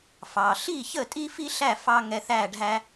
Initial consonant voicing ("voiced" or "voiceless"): voiceless